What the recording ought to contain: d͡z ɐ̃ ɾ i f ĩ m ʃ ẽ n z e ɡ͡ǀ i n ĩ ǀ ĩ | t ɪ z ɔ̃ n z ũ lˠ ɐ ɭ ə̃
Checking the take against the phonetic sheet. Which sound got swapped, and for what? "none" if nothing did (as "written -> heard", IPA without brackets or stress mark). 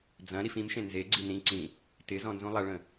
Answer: none